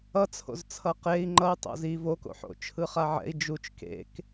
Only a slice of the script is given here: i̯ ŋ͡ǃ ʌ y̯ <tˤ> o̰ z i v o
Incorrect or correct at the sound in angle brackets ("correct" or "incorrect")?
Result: correct